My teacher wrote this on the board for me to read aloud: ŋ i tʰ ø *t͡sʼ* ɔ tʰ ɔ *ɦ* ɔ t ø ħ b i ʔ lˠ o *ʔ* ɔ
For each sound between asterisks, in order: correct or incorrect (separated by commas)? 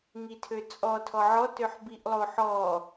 correct, incorrect, incorrect